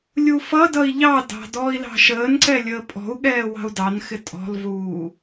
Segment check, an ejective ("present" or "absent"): present